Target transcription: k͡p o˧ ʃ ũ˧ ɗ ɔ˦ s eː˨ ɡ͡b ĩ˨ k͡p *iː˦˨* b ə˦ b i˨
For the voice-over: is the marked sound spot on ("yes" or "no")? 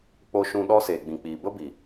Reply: no